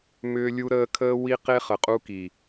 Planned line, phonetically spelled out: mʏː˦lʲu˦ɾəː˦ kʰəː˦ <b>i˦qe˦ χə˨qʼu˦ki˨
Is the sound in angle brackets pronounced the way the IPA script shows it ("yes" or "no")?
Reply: no